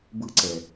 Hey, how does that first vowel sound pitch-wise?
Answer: high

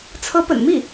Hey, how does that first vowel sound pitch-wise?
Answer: rising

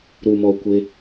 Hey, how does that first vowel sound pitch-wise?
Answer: low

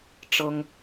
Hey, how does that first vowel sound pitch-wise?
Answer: high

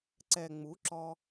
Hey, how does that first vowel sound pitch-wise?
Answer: low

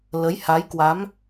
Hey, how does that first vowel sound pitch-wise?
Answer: rising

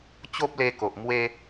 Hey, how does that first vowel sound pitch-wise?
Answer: high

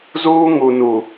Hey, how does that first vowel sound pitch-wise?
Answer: high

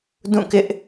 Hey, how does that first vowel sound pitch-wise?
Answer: falling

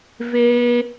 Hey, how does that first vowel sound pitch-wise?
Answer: high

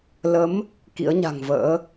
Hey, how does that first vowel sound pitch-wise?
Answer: rising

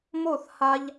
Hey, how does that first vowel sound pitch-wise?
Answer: falling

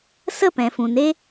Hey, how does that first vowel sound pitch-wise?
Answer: falling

